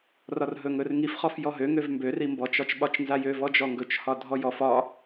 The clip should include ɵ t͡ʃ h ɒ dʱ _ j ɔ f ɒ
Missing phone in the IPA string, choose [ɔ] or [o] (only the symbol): ɔ